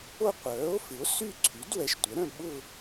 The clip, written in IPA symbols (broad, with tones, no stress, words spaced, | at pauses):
o˥˧ qʷœː˩˥o̯fɪ˩˥o̯ sy˥˧ǀʰy˩˥d wɛ˩˥ʃtʷə˩˥ɾœ̃˥˧ ɓʊ˥˧